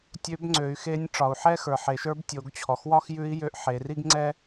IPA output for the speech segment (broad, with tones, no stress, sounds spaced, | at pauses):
tʲ ø˧˥ b ŋ͡ǀ ø˩˧ y̯ x e˧˥ nʲ ʈ͡ʂ ɒ˩ u̯ ħ ɛ˥ x ə˞˩ ħ e˩˧ ʃ ə˞˧˥ b tʲ o˩˧ ɡ t͡ɕʰ ɔ˩ x w ɒ˥ x j ʉ˧˥ i̯ j ø˧˥ ʔ ħ e˩˧ r i˥ ɡ ŋ͡ǀ ɛ˥